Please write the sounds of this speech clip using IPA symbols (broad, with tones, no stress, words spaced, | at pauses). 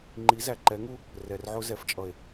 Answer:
ŋ͡ǃi˨˦zæ˨ǃɛ˨˦ŋu˦ | rɛ˨rʕʊ˦zɛ˨˦ft͡ʃʼʌ˨e̯